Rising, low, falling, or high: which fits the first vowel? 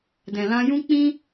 low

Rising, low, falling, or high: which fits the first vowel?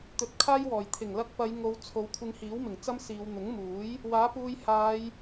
low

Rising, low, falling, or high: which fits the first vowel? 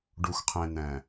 low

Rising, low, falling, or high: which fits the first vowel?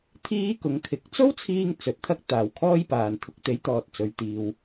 high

